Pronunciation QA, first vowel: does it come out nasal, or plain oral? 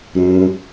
nasal